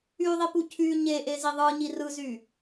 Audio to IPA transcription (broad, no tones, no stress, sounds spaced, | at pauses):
y ðˤ i p u cʰ y ɲ e ʔ e z i ðˤ ɯ ɲ i r ɯ z y